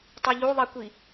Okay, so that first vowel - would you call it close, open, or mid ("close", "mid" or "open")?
close